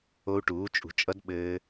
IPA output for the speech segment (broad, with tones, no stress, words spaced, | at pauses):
o˦˥u̯ʈuː˩˥t͡ʃʼṳ˩˥ t͡ʃʼʌ˦˥d ɓɘː˦˥